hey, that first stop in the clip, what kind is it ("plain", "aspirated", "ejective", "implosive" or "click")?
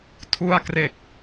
aspirated